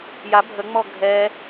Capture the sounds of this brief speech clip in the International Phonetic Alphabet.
j a bʱ ə ŋ͡m ɔ ɡʱ ɛ

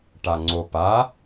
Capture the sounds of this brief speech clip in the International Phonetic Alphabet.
ʈ a ŋ͡ǀ o p a

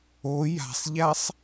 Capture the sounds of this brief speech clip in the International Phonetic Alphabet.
o j a̤ sˤ ʎ a sˤ

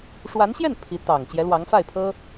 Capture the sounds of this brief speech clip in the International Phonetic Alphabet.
ʂ w a˧˥ n ɕ j ɛ˥˩ n pʰ i˧˥ t̪ ɑ˨˩ ŋ t͡ɕ j ɛ˧˥ l w ɑ˧˥ ŋ f a˥˩ ɪ̯ pʰ ɤ˥

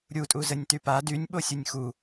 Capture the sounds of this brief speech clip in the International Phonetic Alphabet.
ɾʲ u tʼ u z ə nʲ t y p a d y nʲ ɓ o sʲ u nʲ x u

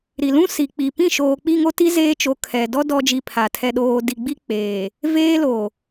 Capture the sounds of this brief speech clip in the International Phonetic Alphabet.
ɾ i˨ l ũ˦ s i˨ k͡p i˨ p ĩ˦˨ ʃ oː˨ k͡p i˦˨ ŋ o˦ t i˦ z eː˦ t͡ʃ o˨ kʰ ɛ˨ d ɔ˦ d ɔ˦ d͡ʒ i˦˨ pʰ a˨ tʰ ɛ˨ ɗ oː˨ d i˨ ɡ͡b i˦ k͡p eː˨ | v eː˦ l o˨

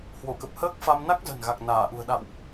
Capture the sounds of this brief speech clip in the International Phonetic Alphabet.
h w o˧˩ k ə˨˩ p̚ h əː˦˥ k̚ f a˧ m n a˦˥ k̚ z ə̤˨˩ n ɣ a˨˩ k̚ n aː˧˩ ʔ ṳ˨˩ ə̯ ɗ a̰˧˨ w ʔ

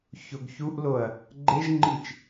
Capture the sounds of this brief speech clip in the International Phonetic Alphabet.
ç o ɡ ç u ʔ l o ɐ̯ | ɡ͡ǃ e ʒ ŋ͡ǃ i t͡ʃ

